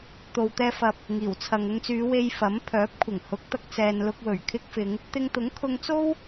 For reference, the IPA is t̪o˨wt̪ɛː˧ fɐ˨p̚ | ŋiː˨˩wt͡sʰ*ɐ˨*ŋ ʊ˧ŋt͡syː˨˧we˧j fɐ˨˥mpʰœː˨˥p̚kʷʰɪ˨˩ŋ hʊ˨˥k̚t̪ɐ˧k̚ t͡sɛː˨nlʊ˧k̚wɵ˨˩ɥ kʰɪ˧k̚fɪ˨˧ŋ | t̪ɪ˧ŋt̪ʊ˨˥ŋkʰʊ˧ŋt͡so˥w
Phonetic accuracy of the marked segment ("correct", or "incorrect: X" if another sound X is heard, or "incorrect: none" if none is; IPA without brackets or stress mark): correct